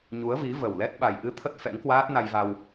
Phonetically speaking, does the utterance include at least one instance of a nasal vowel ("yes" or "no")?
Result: no